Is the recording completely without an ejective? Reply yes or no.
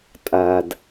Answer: no